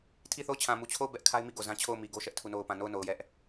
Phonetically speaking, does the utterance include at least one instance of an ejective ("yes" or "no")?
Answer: no